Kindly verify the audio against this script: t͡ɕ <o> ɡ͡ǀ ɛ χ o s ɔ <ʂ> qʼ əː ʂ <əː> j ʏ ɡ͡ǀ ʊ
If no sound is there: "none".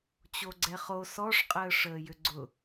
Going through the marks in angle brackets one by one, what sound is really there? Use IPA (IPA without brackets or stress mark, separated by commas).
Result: o, ʂ, əː